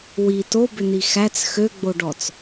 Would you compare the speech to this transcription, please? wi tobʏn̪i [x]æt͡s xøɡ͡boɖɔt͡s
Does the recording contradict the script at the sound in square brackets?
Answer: no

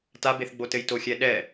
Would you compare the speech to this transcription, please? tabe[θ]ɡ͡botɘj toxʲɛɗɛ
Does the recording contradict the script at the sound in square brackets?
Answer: no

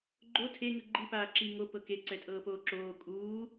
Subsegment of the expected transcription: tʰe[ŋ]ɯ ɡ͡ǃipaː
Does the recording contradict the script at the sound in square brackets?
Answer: no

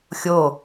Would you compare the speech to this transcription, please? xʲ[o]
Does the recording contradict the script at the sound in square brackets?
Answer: no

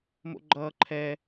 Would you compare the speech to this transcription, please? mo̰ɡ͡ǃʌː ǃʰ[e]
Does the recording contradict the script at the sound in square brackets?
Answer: yes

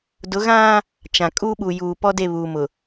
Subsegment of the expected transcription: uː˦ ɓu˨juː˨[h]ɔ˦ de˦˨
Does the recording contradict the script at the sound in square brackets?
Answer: yes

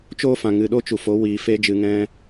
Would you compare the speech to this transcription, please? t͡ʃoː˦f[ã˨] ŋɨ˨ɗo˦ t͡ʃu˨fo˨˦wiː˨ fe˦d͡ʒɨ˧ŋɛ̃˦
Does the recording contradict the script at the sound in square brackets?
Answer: no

